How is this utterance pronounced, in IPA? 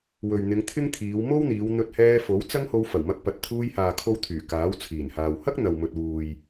w ɵ˨ ɥ n̪ ɪ˨˧ ŋ t̪ʰ ɪ˥ ŋ t̪ʰ iː˨˧ w m o˥ w n̪ iː˨˧ w n̪ ɵ˧ t̚ h ɛː˧ f o˨˥ w t͡s ɐ˥ ŋ h o˧ w f ɐ˨˩ w m ɐ˧ k̚ p ɐ˨ t̚ t̪ʰ uː˧ j h aː˨ kʰ o˧ w t̪ʰ yː˨˩ k aː˨˥ w t͡sʰ iː˨˩ n h aː˨ w h ɐ˥ k̚ n̪ ɐ˨ w m ɵ˨ t̚ w uː˨ j

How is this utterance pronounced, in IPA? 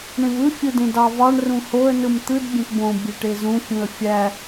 ɳ ẽ v ɯ fʲ ɯ d ẽ d ɑ v ɑ ɳ r ũ h o ə̯ n ɯ m t̪ ɯ d bʲ ẽ t b õ bʲ e ʈ e z ũ fʲ ũ ə̯ fʲ æ

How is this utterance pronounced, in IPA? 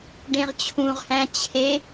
ɖ ẽ ʁ t͡ɕʰ ũ ʁ h æ̃ t͡ɕʰ e

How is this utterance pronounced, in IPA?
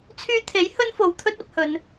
t͡sʰ yː˧ t̪ʰ e˨˥ j h ɵ˥ n f o˨˧ w t̪ʰ ɵ˥ t̚ ɐ˧ p̚ h ɵ˨˧ n

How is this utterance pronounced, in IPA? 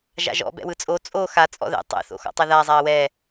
ʒ a̰ ʒ ɔ̰ b ɛ̰ w ɯ t͡sʼ o t͡sʼ o x a t͡sʼ ɔ̰ ð ɛ̰ tˤ ɛ̰ θ o̰ x ɔ̰ tˤ ɛ ð a zˤ a ə̯ w ɛ

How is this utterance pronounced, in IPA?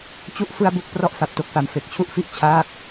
t͡ɕ u˦˥ ʔ f ɯ˥˩ a̯ b u˥˩ k̚ p r ɔ˥˩ ʔ f a˨˩ p̚ t o˥˩ k̚ f a˨˩ m f e˨˩ k̚ t͡ɕʰ u˥˩ ʔ f i˦˥ ʔ t͡ɕʰ aː˥˩ k̚

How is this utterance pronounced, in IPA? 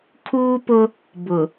kʰ uː˦ p ʊ˦ | b ʊ˨

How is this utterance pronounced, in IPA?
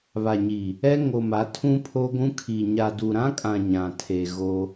β a˨ ɲ i˨ | ɛ˦ ŋ o˨ m a˨˦ tʰ ũ˦ pʰ o˦ ɡʷ ũ˦ kʰ i˨ ɲ a˨ d u˨ ɾ ã˦ kʼ ã˨ ɲ ã˨ tʰ e˨ ɣ o˦

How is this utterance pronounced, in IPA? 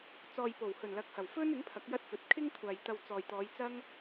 t͡s ɔː˨ j p o˨˩ w h ɵ˨˩ n l ɐ˨˥ k̚ h ɐ˨˩ w f ɵ˥ n ɪ˨˥ ŋ pʰ ɐ˨˥ k̚ j ɐ˥ t̚ f ɵ˨˥ t̚ kʰ ɪ˥ ŋ kʷʰ aː˨ j t̪ ɐ˧ w t͡s ɔː˨ j t̪ ɔː˨˧ j t͡s ɐ˥ ŋ

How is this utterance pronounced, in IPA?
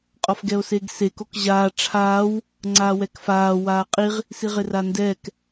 qʼ ɔ f ɡ ɛ o̯ s eː ɡ s e k o k ʑ aː ʈ͡ʂʰ aː w | ŋ͡ǀ aː w ɛ k f aː w aː qʼ i ʁ | s i ʁ ɪ r a n d ɛː k

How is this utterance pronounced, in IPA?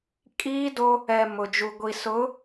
kʼ iː˦ d o˦ | ɛ˨ m ʊ˨ d͡ʒ u˨ ɡʷ i˨ s ʊ˨˦

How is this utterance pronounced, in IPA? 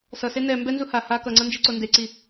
s ʌ s e n ɛ m b ɛ n z u h a h a k ʌ ŋ͡ǀ ʌ n d͡ʒ i ǀ o n d e ǀ i

